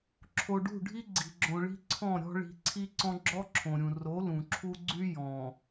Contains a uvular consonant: no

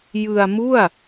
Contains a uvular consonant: no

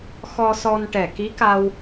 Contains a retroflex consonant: yes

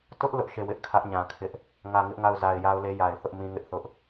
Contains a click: no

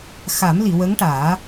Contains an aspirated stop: no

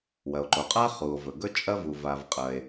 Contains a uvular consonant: yes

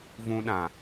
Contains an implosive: yes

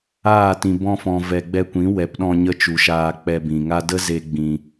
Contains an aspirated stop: no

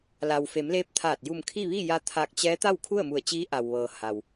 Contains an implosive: no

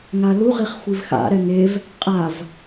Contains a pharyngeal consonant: no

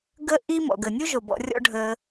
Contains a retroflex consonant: yes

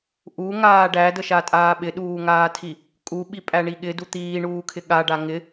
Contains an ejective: yes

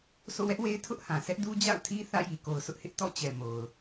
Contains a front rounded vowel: no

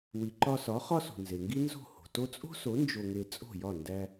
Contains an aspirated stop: no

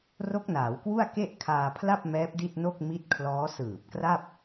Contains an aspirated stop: yes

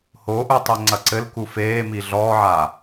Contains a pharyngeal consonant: yes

